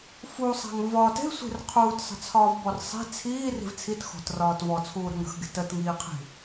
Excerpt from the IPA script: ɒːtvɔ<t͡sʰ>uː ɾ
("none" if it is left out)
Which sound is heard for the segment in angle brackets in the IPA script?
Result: t͡sʰ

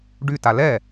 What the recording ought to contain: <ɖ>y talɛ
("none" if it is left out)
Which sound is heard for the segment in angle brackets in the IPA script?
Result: ɖ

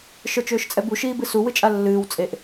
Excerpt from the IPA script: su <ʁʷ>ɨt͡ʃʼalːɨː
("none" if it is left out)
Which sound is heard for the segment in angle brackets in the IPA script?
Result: w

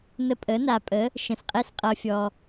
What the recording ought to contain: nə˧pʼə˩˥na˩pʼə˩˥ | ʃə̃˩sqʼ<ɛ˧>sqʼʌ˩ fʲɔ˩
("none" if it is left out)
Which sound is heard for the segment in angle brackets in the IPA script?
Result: ɛ˧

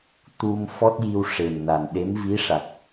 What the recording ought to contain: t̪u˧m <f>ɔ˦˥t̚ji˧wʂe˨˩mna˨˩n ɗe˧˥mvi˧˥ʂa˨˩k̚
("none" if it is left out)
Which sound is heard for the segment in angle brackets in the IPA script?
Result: f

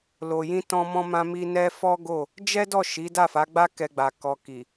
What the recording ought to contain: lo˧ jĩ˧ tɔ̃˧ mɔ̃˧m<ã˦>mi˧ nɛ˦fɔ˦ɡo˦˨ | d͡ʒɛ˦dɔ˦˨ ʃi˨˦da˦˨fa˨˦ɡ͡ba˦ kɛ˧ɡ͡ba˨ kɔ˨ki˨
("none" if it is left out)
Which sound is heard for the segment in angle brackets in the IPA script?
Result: ã˧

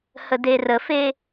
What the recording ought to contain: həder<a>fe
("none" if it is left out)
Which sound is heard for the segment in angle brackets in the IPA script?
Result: ə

